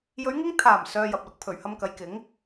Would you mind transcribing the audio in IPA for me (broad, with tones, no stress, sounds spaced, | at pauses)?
j ɵ˨˧ ɥ ŋ ɪ˧ ŋ t̪ʰ aː˨˩ m s œː˧ j ɐ˨ p̚ l ʊ˨˥ k̚ pʰ ɵ˨˩ ɥ h ɐ˧ m k ɐ˨˧ j k ɪ˨˥ ŋ